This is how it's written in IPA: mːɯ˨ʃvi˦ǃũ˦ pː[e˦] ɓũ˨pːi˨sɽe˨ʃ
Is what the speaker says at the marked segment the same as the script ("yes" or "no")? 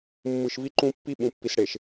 no